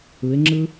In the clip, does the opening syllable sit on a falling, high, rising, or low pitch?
rising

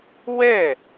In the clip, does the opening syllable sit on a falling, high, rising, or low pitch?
falling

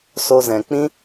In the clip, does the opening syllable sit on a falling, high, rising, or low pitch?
high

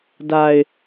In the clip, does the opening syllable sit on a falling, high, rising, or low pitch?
low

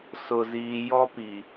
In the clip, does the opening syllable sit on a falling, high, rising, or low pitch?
low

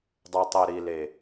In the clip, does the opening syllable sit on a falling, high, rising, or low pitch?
low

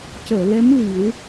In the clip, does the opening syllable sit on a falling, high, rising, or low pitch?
low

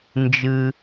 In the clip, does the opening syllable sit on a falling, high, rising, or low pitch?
low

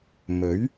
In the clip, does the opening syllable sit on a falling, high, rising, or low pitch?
rising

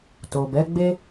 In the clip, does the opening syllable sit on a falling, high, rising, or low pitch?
low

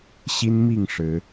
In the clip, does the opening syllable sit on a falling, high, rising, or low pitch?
high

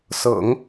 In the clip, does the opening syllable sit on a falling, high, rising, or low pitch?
low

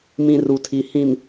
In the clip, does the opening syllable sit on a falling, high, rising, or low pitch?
low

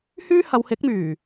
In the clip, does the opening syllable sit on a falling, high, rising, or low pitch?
high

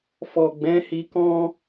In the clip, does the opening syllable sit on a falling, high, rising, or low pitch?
low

